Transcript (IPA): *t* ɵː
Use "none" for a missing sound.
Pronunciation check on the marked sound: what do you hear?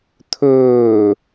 t̪ʰ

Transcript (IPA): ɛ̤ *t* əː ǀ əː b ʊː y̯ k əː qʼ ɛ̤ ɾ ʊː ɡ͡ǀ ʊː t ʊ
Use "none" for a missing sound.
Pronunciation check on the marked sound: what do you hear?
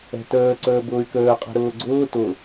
t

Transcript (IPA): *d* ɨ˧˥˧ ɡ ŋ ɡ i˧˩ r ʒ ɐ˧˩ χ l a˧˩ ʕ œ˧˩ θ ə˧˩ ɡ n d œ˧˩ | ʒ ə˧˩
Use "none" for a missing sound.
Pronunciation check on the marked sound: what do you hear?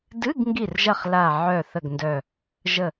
d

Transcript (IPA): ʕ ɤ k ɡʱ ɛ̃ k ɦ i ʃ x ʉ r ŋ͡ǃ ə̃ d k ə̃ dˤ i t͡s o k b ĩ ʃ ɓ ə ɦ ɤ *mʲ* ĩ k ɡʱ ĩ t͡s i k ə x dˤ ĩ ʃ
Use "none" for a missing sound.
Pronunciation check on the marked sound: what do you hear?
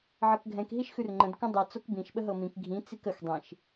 m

